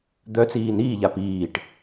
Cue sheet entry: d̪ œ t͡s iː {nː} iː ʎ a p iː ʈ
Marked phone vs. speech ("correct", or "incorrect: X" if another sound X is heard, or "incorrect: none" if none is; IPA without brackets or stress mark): incorrect: n